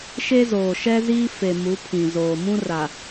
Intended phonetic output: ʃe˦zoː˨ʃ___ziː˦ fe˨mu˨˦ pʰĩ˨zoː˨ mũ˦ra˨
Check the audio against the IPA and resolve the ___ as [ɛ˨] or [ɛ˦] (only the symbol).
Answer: ɛ˦